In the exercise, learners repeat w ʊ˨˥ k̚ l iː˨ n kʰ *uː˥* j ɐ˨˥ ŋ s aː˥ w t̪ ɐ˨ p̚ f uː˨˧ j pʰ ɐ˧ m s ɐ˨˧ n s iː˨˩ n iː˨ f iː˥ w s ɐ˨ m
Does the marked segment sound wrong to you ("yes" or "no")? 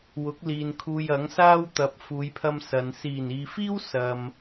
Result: yes